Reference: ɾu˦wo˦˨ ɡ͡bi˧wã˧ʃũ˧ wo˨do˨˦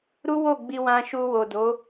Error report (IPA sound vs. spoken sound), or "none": ũ˧ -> u˧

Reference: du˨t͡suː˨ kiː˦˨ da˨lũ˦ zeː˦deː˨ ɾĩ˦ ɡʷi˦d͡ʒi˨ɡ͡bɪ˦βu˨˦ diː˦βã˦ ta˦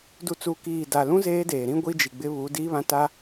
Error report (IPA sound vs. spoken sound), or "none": none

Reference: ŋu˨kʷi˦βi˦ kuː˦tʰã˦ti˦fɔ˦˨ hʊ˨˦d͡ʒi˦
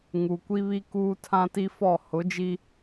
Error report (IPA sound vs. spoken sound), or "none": none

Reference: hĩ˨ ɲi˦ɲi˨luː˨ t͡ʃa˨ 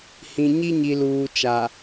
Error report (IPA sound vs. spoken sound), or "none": none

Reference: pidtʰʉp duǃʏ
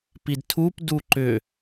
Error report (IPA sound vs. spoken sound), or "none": ʉ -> u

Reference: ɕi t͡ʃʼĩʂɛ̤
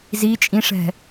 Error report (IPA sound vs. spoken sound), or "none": ɕ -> z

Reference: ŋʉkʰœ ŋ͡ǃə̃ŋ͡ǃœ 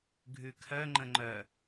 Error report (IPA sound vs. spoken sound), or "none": ŋ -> ɡʱ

